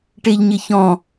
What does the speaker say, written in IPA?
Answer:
ʈeʎɲɪçɔ̃

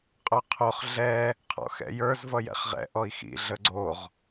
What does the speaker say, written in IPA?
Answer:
qʼœqʰoχ ɮɛ | qʰɔ̰xɛ̰jə˞z vʌjɛ̰χʁɛ̰ ʔɔi̯xḭ ɮəɡ͡ǀoʁ

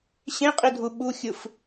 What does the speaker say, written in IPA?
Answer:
ɕẽqʼidʱu ɓuxʲɯf

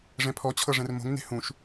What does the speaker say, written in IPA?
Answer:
ʐɛ̃pʰɔt͡ɕʰɤ ʐɛ̃rmo̤ŋ ne̤hũʃ

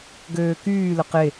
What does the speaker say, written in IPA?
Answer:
ɡøːkyːlə qe

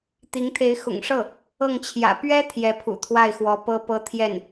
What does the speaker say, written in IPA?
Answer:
t̪i˧˥ŋt̪ʰe˧˥ɪ̯ xʊ̰˨˩ŋʂɤ˥˩ | ɤ˥˩ŋt͡ɕʰjä̰˨˩ pɥɛ˥ t̪ʰjɛ˧˥pʰṵ˨˩t̪ʰwa˥˩ɪ̯xwɔ˧˥ pɤ˥pɤ˥˧ t̪ʰjɛ˥˩n

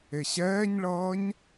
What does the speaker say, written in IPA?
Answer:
eɕɛːɲɭʌːɲ

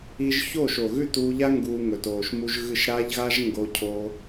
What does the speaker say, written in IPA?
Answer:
i˧ʒ çoː˦˨ʃo˨ ɣʉ˦˨tuː˧ʎa˦ ŋɡuː˧ŋɵ˨toː˨ʃmu˦ʒ ɣɨ˦˨ʃ ɾa˦ʎɣa˦ʒ ŋɡo˦cʰoː˦

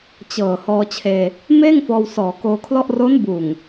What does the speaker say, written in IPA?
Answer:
t͡ɕɤː˨˩ hɔː˧t͡ɕʰeː˧ | meː˥˩ŋfɔː˧w sɔː˨˩koː˧kʰlɔ˥˩ʔ ro˦˥nbuː˨˩ŋ

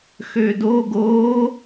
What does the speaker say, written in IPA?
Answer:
xødo ɡo

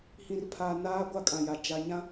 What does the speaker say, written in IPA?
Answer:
hĩ˨rpʰa˨ naː˦ ɡʷa˦kʼã˨ja˨ d͡ʒa˨ɲã˦

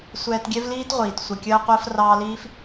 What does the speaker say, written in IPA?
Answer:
sʷɛː˧tɡʲɛ˦vliː˦tʁʷiː˨t sʷə˨kʲəː˧ qʷəː˧frɑː˧liː˦f

